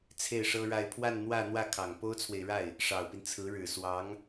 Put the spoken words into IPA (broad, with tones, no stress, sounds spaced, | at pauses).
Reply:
t͡sʰ e˥˩ ɪ̯ ʂ ɤ˥ ɻ a˥˧ ɪ̯ pʰ w a˥˧ n n̪ w ä˥˧ n̪ w ä˥˩ kʰ ɑ˨˩ ŋ p o˥ ʊ̯ t͡sʰ w e˨ ɪ̯ ɻ a˥˩ ɪ̯ | ʂ ɑ˨˩ ʊ̯ p i˦ n t͡sʰ ɹ̩˧˥ ɻ ɻ̩˨˩ s w ɑ˧˥ ŋ